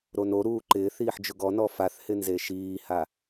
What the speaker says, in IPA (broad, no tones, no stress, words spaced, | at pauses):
ɾonoɾuː ǃɪːθ iːħd͡ʒʊɡɔnɔ faθhɪ nzeʃiːha